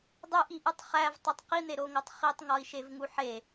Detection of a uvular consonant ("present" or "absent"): present